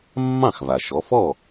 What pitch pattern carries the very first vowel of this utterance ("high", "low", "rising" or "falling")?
falling